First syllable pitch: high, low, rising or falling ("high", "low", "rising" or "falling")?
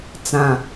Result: low